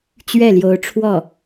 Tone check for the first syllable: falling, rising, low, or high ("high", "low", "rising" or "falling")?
falling